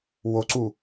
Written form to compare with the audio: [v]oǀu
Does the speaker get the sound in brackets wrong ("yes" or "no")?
yes